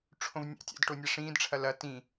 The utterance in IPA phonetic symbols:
ʈ͡ʂʰ õ v nʲ a̰ tʲ a̰ d ʈ o nʲ a ʂ ĩː d ʈ͡ʂʰ ɐ l ɐ t ĩ

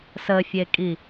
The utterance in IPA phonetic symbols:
s ə fʲ e kʼ i

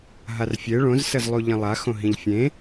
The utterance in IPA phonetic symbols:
ɦ a r fʲ e ɭ õ z s ə z lˠ u ʎ ə̃ lˠ a x õ ɦ ĩ ʎ fʲ ẽ

